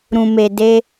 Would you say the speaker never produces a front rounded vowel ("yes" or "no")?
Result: yes